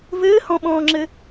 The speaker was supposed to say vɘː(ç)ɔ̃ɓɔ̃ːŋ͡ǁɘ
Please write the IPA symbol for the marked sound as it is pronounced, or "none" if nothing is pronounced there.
h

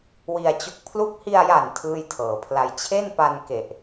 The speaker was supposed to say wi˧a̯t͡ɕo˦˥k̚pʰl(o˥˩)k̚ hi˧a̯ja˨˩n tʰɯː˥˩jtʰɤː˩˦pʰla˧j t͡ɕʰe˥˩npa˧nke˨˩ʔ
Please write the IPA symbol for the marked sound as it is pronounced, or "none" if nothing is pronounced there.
u˥˩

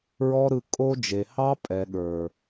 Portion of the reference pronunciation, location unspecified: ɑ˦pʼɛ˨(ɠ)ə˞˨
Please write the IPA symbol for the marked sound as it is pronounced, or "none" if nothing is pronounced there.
ɠ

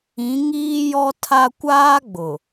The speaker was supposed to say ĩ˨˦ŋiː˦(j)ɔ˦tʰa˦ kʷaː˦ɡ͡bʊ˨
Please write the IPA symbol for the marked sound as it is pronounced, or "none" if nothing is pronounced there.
j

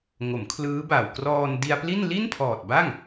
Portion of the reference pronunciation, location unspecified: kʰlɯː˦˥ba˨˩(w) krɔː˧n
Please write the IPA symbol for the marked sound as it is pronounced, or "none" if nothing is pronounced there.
w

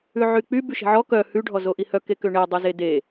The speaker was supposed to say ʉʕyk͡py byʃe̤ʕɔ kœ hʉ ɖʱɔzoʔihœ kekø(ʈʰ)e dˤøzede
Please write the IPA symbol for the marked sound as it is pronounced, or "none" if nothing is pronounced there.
ɳ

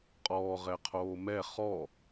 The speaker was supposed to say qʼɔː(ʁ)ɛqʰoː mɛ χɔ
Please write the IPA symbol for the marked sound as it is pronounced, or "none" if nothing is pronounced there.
ʁ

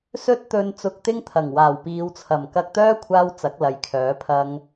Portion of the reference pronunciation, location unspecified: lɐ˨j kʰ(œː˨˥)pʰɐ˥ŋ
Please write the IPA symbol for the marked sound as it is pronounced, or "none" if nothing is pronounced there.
œː˨˥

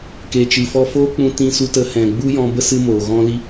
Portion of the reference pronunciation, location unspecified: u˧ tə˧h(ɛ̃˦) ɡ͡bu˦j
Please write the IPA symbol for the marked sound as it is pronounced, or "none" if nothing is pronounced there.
ɛ̃˨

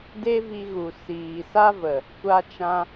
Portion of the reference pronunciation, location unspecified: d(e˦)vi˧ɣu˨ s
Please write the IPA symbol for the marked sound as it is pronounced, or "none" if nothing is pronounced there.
e˦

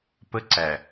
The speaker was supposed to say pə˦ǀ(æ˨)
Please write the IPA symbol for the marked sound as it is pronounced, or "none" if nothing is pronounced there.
æ˨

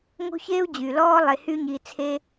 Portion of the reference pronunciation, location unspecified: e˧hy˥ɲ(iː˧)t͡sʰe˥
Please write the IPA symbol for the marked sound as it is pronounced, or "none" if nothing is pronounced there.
iː˧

